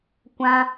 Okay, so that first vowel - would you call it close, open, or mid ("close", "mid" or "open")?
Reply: open